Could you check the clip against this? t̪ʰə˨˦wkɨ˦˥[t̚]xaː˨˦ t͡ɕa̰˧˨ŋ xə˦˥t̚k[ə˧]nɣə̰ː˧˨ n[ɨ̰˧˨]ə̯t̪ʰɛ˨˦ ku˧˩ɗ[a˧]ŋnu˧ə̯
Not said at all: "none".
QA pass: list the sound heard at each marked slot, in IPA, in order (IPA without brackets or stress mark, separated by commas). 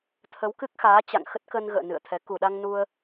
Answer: k̚, ə˧, ɨ̰˧˨, a˧